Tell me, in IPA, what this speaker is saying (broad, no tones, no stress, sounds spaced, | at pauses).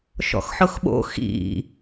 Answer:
ʃ ɔ̰ x ħ ʊ x ɓ o̰ x ḭ